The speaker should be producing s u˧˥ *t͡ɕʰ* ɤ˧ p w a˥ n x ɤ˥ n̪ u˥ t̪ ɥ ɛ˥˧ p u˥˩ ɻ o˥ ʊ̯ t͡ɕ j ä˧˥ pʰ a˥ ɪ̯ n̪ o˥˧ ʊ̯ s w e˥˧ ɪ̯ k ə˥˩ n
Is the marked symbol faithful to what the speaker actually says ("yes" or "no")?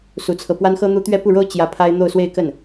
no